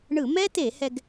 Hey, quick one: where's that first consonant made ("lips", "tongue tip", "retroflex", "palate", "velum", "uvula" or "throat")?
retroflex